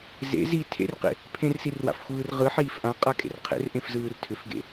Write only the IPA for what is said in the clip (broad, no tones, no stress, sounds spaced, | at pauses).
z ḛ z i tʰ ḛ r q ḛ | pʰ ẽ r s i r w a̰ f xʷ ɯː r ʁ ɯ ħ iː f ʔ ã qʼ a kʼ ḛ r qʰ ḛ r ʔ ẽ f z ɯː r tʰ ʏ f ɡ ḛ